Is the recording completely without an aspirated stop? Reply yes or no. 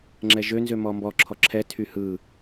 no